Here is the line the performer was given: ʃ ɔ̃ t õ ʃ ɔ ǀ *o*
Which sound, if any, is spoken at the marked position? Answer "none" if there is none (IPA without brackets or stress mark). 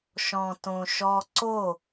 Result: o